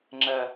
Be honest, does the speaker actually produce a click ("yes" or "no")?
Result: yes